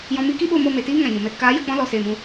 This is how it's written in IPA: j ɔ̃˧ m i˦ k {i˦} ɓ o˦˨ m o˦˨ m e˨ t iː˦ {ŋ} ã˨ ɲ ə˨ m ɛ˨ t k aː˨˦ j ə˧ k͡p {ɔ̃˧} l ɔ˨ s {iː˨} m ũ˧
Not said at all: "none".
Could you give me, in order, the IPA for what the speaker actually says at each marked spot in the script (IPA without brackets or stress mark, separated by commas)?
i˦, ŋ, ɔ̃˦, eː˨